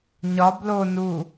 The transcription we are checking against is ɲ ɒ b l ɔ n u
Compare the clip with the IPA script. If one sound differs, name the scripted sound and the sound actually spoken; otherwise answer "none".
ɔ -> o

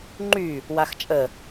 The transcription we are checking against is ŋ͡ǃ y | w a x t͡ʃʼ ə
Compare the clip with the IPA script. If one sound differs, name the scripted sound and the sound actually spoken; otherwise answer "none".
none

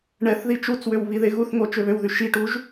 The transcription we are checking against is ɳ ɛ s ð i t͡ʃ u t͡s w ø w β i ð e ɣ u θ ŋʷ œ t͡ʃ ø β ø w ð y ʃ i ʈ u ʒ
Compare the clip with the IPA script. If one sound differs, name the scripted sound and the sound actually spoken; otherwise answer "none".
s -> θ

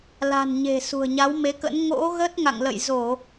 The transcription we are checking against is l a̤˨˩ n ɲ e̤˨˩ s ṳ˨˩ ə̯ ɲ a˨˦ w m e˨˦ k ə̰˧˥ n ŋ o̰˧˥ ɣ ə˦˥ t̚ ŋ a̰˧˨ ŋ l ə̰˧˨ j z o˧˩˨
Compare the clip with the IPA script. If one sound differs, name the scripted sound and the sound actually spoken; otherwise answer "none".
none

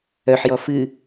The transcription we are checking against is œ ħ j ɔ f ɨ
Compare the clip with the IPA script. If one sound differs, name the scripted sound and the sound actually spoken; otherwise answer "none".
none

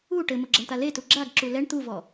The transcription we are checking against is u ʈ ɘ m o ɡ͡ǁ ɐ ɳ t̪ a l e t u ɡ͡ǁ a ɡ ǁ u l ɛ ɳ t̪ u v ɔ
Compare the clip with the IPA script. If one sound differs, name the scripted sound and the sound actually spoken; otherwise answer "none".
none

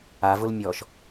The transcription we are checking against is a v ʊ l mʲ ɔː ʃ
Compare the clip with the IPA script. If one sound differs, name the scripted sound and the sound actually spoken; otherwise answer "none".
none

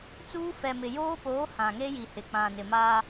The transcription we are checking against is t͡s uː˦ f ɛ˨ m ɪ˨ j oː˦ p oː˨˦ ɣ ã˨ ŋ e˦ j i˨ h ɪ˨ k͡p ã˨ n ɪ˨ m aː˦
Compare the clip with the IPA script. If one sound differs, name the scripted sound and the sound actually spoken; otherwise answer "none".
ɣ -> h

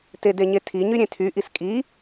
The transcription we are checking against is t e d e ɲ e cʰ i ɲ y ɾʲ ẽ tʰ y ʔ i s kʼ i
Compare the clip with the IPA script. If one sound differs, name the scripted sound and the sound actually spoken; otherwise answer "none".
cʰ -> tʰ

